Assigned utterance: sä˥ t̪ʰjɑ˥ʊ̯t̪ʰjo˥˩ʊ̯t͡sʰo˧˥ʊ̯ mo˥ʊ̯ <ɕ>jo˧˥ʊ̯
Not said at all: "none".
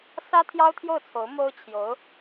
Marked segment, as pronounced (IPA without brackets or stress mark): t͡ɕʰ